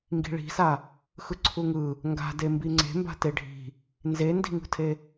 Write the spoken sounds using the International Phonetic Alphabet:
ŋɡi̤ɭi̤sa | xɯǀʰuŋɯ | ŋɡa̤de mbiŋ͡ǀe̤mba̤ teɖʱi̤ | nzendi̤ŋṳtʰe

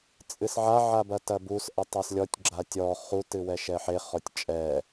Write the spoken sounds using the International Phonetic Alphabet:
t͡sʼɨsʕa ʕabɐtɐbus ʔɐtˤaslʲɔtʲ ɡ͡ǁatʲɔ χu tɨwɛʃɛħe χɔtʲt͡ʃʼɛ

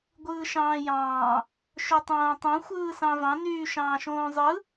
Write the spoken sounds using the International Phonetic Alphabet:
ɡʷɯːʃɑ̃ːjɑ̃ː | ʃøtˤõːtˤõ xʷɯːsɑ̃vɑ̃ nyːʃɑ̃ːʃõːzˤɯ

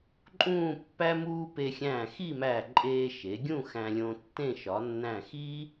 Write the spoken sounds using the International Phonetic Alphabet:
ǃʼũː˥˧pːæ˥ muː˥ pe˧xʲæ̃ː˧˩xi˥˧mæ˧˩ ǃʼeː˧ ʃe˩˧ɡʲũ˥˧ xæ̃˧lʲõ˧tːẽ˥˧ ʃɒ˩˧nːæ̃˧˩xi˥

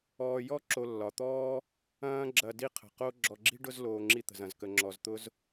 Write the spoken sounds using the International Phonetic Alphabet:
ɔː˨jɔ˥ ǁo˨lːɒ˩t̪ɔː˥ | ɐ̃ː˦ ɡ͡ǁɐ˨ di˦qʰə̤˩qo˦ ɡ͡ǁɔ˨ɡ͡ǁi̤˥ɖʊ˦z loː˨ŋ͡ǁi˦t̪ə̤˩z ɐ̃˩zkə˨ŋ͡ǁɔ˨zt̪ʊ˥z

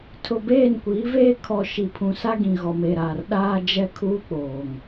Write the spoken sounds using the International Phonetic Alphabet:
tʰʊ˨beː˦˨nkʷiː˨˦veː˦ kʰɔ˨ ʃi˨pʰũ˨sa˦ɡĩ˨ ɣɔ˨me˦˨ɾaː˨rɗaː˦ d͡ʒɛ˦kʰuː˦ k͡poː˨ŋ

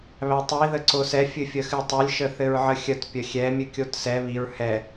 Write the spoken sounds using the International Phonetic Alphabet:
βætˤi ðəǀosɛ fʲɨfʲəxɨtˤɨlʲ ʃəθɘɹʕəxʲət pʲəxʲɛ mʲɨkʲotsɛ βiɹ hɛ

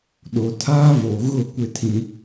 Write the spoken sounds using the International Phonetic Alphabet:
ɗo˨tʰaː˦vo˨ɣʊ˦˨ kʷɪ˦tʰĩ˦

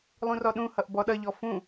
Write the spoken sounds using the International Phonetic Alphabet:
lˠũrɔɗũhʌʔ bɔɗʌʎɔ fũ

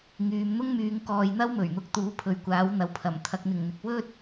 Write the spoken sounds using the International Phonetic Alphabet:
ŋyː˨mn̪ʊ˥ŋmyː˨˧ŋ kɔː˨jn̪ɐ˥w mɵ˨˩ɥn̪ʊ˧k̚ t̪uː˨˧pʰɵ˨ɥkʷaː˨˥w n̪ɐ˨wpʰɐ˨˩m t̪ʰɐ˨k̚n̪ɪ˨˩ŋn̪ɪ˨k̚ wɵ˥t̚

